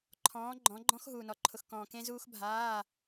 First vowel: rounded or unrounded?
rounded